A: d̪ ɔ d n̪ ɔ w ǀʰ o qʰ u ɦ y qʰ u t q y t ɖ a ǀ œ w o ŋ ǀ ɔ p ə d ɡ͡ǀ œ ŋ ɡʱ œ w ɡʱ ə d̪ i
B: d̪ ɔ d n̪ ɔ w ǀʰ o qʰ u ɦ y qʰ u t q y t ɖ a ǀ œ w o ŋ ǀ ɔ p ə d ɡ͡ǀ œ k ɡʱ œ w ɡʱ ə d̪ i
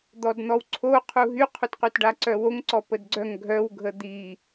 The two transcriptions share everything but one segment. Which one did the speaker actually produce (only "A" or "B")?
A